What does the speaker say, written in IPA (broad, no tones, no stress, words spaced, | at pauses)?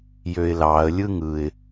jøɪ̯lɑə̯ lʲɯŋɯɪ̯